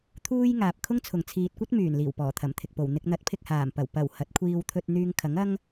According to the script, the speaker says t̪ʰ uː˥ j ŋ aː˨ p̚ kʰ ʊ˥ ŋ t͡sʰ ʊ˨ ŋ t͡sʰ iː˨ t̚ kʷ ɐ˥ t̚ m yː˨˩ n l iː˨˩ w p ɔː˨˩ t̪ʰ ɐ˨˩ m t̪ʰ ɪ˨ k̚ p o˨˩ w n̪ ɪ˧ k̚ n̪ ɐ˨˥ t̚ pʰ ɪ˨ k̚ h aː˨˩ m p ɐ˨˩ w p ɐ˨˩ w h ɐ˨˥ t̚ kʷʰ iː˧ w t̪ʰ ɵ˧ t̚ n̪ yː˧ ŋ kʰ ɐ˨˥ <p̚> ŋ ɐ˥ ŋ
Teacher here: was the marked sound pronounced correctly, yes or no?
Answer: no